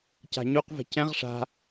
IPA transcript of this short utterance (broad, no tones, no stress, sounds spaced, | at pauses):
c a̤ ɲ u q v ɛ̤ c ɛ̃ ʁ ʂ a̤